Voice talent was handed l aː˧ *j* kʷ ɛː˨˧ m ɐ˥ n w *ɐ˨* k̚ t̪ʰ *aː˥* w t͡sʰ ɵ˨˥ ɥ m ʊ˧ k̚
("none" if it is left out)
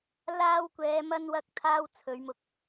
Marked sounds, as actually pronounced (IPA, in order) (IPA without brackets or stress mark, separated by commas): w, ɐ˥, aː˥